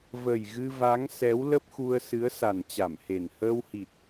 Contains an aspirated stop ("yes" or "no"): no